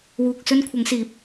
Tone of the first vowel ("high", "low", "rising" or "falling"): low